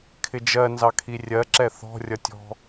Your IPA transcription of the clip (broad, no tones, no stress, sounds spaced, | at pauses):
kʰ ɪ d͡ʒ ɜ n z ɑ kʰ i rʲ ɜ ǁ ɛ θ ɔ̤ rʲ ʌ tʲ ɔ̤